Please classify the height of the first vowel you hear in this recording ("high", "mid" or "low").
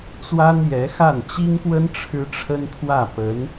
low